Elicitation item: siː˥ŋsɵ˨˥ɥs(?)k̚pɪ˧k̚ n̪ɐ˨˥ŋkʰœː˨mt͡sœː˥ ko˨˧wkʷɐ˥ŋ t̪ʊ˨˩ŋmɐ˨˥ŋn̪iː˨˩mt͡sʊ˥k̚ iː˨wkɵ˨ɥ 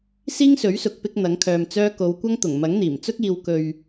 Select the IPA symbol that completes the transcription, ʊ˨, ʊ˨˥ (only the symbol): ʊ˨